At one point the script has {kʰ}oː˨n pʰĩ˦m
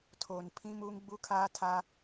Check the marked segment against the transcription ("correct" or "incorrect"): incorrect